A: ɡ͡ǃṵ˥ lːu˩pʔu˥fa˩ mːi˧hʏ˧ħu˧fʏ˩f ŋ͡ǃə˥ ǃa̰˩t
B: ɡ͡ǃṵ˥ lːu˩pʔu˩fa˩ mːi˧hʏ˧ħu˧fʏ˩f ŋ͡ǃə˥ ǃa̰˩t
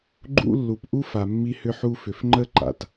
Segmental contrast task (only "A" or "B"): A